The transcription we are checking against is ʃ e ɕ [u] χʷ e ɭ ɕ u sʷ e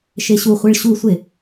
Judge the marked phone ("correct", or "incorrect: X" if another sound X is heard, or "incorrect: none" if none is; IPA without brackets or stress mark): correct